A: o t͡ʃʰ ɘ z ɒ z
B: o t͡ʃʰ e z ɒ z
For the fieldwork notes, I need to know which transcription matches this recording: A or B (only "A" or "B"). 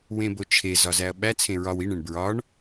B